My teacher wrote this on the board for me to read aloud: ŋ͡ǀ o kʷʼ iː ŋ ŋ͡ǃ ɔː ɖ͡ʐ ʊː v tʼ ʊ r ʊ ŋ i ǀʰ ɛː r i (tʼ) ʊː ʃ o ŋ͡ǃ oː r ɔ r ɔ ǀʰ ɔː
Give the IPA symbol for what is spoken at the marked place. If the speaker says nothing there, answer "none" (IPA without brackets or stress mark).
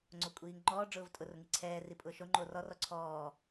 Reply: pʼ